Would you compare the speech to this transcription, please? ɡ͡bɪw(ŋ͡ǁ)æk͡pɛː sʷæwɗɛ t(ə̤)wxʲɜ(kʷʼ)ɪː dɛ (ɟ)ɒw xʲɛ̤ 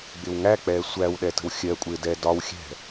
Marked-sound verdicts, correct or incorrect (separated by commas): incorrect, correct, correct, incorrect